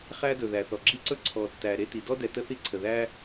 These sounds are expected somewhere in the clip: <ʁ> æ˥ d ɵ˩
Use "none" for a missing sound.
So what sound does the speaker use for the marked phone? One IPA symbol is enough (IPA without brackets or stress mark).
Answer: χ